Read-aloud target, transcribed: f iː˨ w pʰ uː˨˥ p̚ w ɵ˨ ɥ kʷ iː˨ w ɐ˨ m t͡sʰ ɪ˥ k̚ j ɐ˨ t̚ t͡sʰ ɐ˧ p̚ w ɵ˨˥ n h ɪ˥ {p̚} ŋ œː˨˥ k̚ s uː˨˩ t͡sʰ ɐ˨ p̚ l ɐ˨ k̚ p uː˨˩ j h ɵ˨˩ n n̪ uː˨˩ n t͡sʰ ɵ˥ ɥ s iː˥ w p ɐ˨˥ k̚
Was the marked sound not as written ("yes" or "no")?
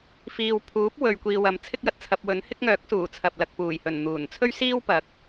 yes